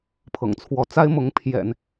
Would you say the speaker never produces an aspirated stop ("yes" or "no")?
no